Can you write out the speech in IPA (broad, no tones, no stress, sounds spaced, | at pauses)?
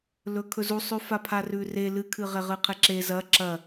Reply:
l ɵ kʰ ɵ z u sˤ ʉ f a pʰ a r ʉ r e l ɨ kʰ ɨ ʁ e ʁ ɨ qʰ e ǁ e z ɐ ǁ ɐ